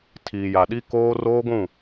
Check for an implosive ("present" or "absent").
present